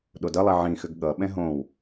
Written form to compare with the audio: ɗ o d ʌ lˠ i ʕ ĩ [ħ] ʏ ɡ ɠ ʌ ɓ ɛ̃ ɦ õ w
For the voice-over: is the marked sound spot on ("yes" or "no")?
no